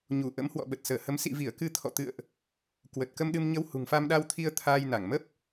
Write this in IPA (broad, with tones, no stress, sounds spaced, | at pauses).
ɲ u˧˩ ʔ ə̰˧˥ m h w ɔ̰˧˨ ɓ ə˨˩ t̚ s əː˧˩ h ə˨˦ m s ḭ˧˨ v i˧˩ ə̯ k ɨ˧ t̪ʰ ɔ̰˧˨ t̪ ɨ̰˧˨ ə̯ ʔ | k w ə˨˩ t̚ k ə˧ m ɗ ɨ˧ m ɲ ə˧ w h ṳ˨˩ ŋ f a˧ m ɗ a˧ w t̪ʰ i˧ ə̯ t̪ʰ aː˧ j n a˧˩ ŋ m ə˦˥ p̚